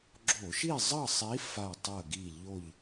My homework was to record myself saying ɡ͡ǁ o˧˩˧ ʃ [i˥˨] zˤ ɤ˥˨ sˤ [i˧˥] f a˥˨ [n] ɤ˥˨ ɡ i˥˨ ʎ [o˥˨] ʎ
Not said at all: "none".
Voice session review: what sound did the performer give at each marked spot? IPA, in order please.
i˥˨, i˧˥, tˤ, o˥˨

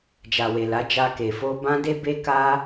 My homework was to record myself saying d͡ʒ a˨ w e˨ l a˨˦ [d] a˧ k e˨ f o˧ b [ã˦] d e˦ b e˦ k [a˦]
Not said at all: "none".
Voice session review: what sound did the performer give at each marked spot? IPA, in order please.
d͡ʒ, ã˦, a˦

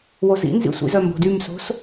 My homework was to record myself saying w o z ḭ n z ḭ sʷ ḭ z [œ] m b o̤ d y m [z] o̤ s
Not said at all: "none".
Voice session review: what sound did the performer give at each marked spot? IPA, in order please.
œ, s

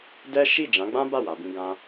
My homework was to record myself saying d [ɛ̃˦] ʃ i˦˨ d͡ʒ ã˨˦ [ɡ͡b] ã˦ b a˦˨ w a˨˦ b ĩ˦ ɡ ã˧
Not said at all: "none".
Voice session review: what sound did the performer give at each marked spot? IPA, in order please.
ɛ˦, ɡ͡b

